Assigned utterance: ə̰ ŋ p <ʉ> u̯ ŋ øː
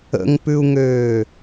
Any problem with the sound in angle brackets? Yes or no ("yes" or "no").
no